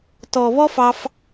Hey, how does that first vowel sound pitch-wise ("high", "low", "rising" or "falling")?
low